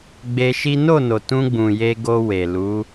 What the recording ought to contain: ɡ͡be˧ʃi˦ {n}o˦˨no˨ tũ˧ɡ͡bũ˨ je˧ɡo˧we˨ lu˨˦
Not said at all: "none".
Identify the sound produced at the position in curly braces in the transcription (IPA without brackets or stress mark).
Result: n